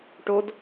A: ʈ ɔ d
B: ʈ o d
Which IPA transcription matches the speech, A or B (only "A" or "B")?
B